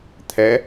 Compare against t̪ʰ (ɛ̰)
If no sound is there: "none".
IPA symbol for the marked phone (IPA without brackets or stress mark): ɛ